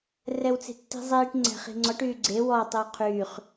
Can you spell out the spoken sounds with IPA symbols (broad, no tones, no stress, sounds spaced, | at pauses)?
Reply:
r ɛ w t͡s e̤ tː i̤ zˤ iː ʈ ŋ͡ǀ ɛ̤ χ i̤ ŋ͡ǀ ɔ ʈ yː ɡ͡ǀ e w ɔ tˤ i w qʰ yː χ